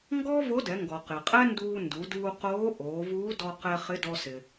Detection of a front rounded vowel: absent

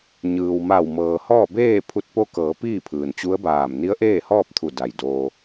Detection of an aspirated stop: present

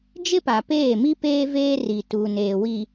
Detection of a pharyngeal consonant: absent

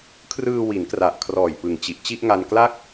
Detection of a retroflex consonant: absent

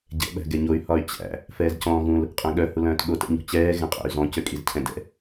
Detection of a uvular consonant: present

